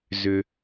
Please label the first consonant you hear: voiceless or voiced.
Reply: voiced